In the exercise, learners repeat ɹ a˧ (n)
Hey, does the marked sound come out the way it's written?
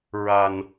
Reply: yes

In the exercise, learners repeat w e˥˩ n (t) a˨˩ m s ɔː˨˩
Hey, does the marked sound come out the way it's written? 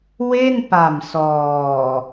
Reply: no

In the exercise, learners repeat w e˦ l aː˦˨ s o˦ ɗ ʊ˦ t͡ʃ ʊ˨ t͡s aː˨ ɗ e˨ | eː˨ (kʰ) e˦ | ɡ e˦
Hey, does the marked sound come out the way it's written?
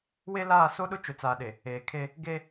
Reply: yes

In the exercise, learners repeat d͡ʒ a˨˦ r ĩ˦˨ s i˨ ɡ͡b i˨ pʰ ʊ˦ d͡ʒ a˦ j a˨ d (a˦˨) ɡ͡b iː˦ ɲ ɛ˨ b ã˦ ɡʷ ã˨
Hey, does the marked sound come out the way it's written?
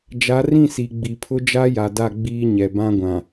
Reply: yes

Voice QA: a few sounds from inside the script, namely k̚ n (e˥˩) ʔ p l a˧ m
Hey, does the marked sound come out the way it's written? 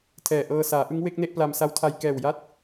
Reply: yes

